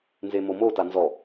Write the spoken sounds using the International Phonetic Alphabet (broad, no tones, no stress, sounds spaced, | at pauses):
n z e m o m o t a n z ɔ